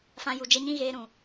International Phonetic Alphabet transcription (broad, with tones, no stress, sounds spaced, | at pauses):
f ã˧ j u˨ d͡ʒ ɛ˦ ɲ ĩ˦ ɣ eː˧ ɾ ũ˨